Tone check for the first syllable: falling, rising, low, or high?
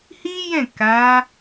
high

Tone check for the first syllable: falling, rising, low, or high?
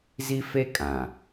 high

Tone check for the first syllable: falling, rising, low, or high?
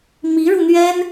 rising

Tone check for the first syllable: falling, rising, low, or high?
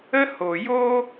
high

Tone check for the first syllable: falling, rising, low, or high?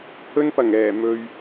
high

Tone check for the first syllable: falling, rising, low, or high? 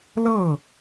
falling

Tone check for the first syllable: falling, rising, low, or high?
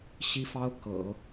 high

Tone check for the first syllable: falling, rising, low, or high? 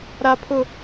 high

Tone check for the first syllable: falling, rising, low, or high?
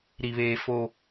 low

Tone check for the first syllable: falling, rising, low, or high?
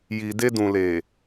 low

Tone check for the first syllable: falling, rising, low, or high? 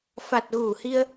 low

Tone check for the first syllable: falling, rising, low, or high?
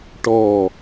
low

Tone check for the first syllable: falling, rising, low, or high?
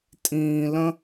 high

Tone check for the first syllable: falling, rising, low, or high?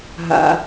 low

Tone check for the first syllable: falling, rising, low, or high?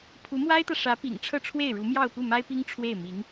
rising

